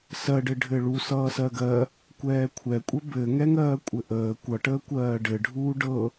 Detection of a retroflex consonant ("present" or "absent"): present